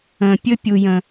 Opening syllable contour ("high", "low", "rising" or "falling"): low